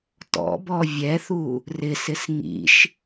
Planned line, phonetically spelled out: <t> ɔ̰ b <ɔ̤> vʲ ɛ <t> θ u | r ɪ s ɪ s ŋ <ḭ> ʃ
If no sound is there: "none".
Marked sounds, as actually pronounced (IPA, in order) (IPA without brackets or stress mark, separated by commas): t, ɔ, none, ḭ